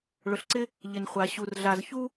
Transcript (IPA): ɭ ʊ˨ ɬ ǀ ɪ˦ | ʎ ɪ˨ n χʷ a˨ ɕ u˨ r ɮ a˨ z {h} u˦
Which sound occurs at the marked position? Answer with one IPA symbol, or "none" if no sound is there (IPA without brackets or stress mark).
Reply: ç